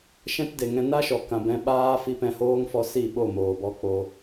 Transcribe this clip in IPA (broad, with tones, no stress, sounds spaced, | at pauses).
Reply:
ʃ ɛ̃˦ t d e˨ ŋ ɛ̃˧ n a˦ ʃ ɔ˨ k ã˧ b ɛ̃˦ ɓ aː˦ f i˧ p ɛ̃˧ h oː˦ ŋ f ɔ˧ s i˦˨ ɓ o˦˨ m oː˨ b ɔ˧ k͡p o˧